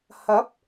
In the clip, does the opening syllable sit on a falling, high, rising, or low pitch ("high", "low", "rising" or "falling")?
rising